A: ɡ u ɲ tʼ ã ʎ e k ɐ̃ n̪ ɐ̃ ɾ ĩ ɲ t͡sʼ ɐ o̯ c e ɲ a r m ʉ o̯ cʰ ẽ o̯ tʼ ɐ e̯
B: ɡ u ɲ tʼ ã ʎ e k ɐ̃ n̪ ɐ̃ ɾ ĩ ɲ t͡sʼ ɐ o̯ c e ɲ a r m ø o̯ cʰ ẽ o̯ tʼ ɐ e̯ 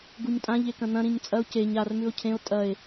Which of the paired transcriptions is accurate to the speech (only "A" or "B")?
A